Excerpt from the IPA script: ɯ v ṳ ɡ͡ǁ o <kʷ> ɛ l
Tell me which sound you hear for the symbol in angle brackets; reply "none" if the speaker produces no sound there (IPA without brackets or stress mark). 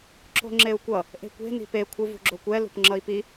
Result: kʷ